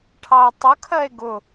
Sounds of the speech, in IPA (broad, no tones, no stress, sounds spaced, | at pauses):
ʈʰ ɑ o̯ tˤ ʊ kʰ ɜ e̯ ɡ ʊ